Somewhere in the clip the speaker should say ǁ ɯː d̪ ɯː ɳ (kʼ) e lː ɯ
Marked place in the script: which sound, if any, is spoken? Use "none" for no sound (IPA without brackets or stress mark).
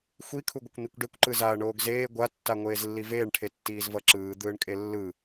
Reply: kʼ